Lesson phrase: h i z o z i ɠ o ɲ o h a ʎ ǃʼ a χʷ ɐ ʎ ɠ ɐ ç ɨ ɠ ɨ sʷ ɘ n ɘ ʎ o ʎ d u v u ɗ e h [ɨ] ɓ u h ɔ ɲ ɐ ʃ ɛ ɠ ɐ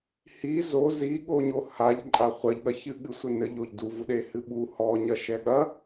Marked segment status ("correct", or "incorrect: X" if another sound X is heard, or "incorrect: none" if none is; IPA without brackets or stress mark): correct